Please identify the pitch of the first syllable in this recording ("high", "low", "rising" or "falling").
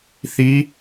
rising